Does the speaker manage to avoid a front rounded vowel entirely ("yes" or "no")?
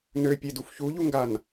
no